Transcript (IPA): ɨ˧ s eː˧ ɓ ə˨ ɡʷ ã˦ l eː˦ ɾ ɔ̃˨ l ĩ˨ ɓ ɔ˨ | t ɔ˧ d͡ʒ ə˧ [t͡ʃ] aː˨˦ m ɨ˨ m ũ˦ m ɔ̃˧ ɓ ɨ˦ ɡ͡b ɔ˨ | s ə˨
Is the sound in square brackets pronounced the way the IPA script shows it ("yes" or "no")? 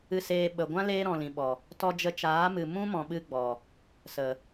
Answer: yes